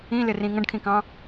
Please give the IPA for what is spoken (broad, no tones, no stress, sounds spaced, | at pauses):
ĩ l ɪ r ĩ ŋ ə̃ ɖ kʰ ĩ k ɑ̃